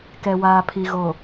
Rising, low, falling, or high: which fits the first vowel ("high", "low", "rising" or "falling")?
low